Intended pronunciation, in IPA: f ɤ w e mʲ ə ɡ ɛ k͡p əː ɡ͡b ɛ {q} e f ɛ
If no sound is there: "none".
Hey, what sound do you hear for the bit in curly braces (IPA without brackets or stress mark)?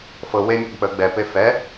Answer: p